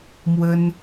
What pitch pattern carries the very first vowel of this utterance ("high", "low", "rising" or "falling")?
high